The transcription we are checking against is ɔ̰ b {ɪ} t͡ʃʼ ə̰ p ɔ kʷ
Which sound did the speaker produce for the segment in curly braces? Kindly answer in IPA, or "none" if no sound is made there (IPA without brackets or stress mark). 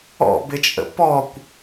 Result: ɪ